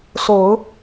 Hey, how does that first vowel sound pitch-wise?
low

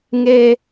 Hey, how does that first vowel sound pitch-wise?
high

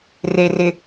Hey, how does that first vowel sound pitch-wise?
low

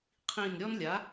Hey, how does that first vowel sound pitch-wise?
falling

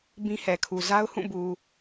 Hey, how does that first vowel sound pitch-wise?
high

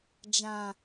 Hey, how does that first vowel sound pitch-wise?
low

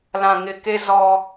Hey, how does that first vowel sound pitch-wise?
low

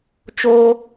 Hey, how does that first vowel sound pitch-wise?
high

